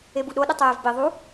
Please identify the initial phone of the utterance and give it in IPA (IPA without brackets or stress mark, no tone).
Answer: e